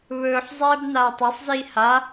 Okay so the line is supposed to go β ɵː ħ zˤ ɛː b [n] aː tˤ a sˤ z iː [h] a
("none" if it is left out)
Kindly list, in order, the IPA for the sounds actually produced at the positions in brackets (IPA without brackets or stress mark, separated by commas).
n, h